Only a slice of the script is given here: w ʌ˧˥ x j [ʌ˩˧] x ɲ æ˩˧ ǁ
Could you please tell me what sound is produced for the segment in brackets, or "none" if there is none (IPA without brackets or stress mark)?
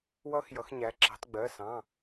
ʌ˩˧